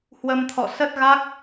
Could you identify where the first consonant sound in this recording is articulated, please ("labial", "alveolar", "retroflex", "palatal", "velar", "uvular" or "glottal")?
glottal